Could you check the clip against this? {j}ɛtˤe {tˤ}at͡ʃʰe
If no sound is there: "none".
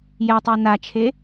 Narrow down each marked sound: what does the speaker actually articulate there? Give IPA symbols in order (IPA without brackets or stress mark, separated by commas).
j, n